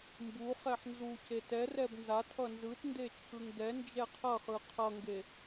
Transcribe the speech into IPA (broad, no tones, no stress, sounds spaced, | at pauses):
m b u χ ɛ ħ n z u c e t ɛ r ɛ b n z a tʰ ʌ n z ɯ t n d e t͡ʃʰ ɯ ŋ d ɛ n d͡ʒ ɛ qʰ ʌ χ ɯ qʰ ʌ ŋ ɡ e